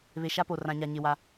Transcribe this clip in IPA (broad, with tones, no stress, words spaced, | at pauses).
βe˨ʃa˦po˨ rã˨ɲa˨ ɲɪ˨ wa˨